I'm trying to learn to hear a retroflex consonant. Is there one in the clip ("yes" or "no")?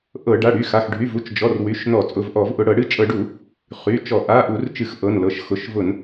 yes